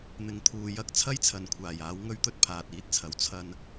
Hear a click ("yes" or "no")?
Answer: no